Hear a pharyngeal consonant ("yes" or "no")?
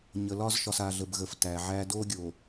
yes